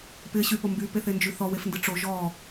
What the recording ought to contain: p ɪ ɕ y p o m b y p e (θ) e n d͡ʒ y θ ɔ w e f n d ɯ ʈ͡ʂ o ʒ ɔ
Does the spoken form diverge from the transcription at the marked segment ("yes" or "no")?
no